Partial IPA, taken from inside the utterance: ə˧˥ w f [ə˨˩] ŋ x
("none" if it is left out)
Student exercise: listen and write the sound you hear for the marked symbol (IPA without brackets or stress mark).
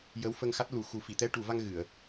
ə˧